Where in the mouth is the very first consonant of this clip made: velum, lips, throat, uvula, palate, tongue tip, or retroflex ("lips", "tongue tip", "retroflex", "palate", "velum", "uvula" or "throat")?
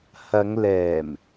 throat